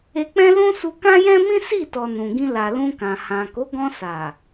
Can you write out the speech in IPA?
e˧ k͡p ɛ̃˦ l ũ˦ s u˧ k ã˦ j ɛ̃˦ m ĩ˦ s i˦˨ t ɔ˨ n ũ˨ ɡ ĩ˧ l a˨ l ũ˧ k ã˨ h ã˨ k o˨˦ ɡ ɔ̃˧ s a˨

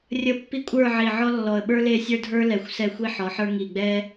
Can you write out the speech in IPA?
rʲ ə˥˧ pː i˥ kʷʼ ə˞˥˧ ʕ i˧˩ ʕ ɔ˥ lː ɔ˧˩ ə̯ ɓ ə˞˥ l e˥˧ sʲ ə˞˥ dʱ ə˞˥ l ɛ˧˩ xʷ s ɛ˧ xʷ i˧ ħ ɔ˩˧ ħ ə˞˧ ŋ i˧˩ ɡ͡b ɛ˥

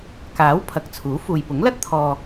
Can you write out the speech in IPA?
k aː˨˥ w pʰ ɐ˨˥ k̚ t͡sʰ uː˨˥ f uː˨ j p ʊ˨˥ ŋ l ɐ˥ t̚ t̪ʰ ɔː˧

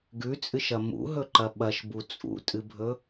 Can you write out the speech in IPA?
ɡ ʉ t͡sʼ ɨ ʃ ɐ m ṵ ɦ ɵ ǃ ɐ ɓ ɐ ʃ b u t͡sʼ ṵ tʼ ɨ bʱ ɵ

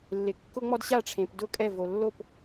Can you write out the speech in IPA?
lː ɪ˨ kː ʊ˥ ŋ͡m ɔ˥ d ɕ a˥˨ ʈ͡ʂʰ ẽ˨ p d ʊ˥˨ kʼ ɛ˥˨ v o˨ lː o˥˨ p

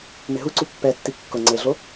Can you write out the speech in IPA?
m ɪ ɦ u ǀ u pː ɛ tː i kː ʊ ŋ͡ǀ e ɮ o

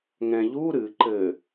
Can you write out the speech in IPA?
ŋ ɛ̃ ʎ u ɾ ɨ ǃ ɘ

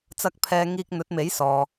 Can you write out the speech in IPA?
t͡s ɐ˧ k̚ pʰ ɛː˨ ŋ iː˧ k̚ n̪ ɵ˨˥ t̚ m e˨˥ j s ɔː˨

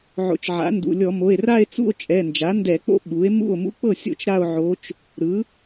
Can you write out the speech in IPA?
ʕ o̰˩˥ t͡ʃ ʕ a̰˩˥ n d ṵ˩˧˩ lʲ ɔ˧˩˧ m o˩˧˩ e̯ r a˥˧ e̯ t͡s ṵ˥˧ o̯ t͡ʃʼ ɛ˩˧˩ n d͡ʒ a˩˥ n d ɛ˧˩˧ k͡p o̰˧˥ ɓ u˩˥ e̯ m ṵ˥˩ o̯ m ṵ˧˥ k͡p ɤ˥˩ sʲ o̰˥˩ t͡ʃ ɾ a˥˧ o̯ ʕ o˧˥ t͡ʃ | ɾ ɯ˩˥

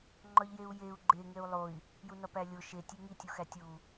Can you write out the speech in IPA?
ŋ͡ǃ ɒ ʎ j e u̯ j e u̯ ɡ͡ǃ e ŋ e u̯ lˠ o i̯ | j u n ɒ p æ lʲ o ʃ e tʲ e ŋ i tʲ u x æ tʲ u

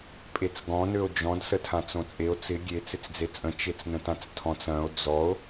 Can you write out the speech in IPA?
pʼ e t͡s ɡ ɔ̃ n ø o̯ d͡ʒ ɔ̃ d s ə tʰ ã t͡s õ t͡sʼ e o̯ t͡s ɪ ɡʲ e t͡s ɪ t͡s d͡z e t͡sʼ ə̃ t͡ʃ e t͡s n ə̃ t ã t͡s tʰ ɔ̃ t͡s ɐ̃ o̯ d͡z ɔ o̯

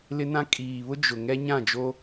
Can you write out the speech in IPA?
l ɪ˦ n ã˦ kʼ iː˨ β ʊ˦ d͡ʒ ʊ˨ ŋ ɛ˦ ɲ ã˦˨ d͡ʒ o˦

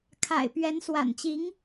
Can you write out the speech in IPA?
kʰ a̰˨˩ ɪ̯ p ɥ ɛ˧˥ n s w a̰˨˩ n t͡ɕ i˧˥ ŋ

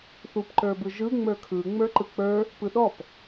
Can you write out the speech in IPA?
θ u p ǃ ə˞ b ɯ ʒ ɯ ŋ͡m ə˞ kʰ ɯ ŋ͡m ə˞ ǃ ɯ k͡p ə˞ | p ɯ ɗ ɔ p

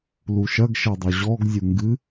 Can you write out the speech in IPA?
l u ʃ ɐ ɡ ʃ ɛ dˤ o ʑ ɔ ɡ zʲ u ŋ ɡ ɨ

